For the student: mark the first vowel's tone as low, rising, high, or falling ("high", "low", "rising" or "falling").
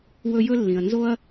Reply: high